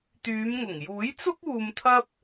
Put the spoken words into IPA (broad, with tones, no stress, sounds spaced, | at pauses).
t̪ yː˨˧ m ŋ ʊ˨˩ ŋ j uː˨˥ j t͡s ʊ˥ k̚ uː˧ m t̪ʰ ɐ˥ p̚